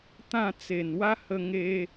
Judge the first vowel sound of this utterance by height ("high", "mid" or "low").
low